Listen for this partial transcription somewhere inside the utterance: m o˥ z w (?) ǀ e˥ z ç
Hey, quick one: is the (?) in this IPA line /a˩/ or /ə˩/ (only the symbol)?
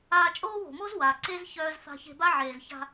a˩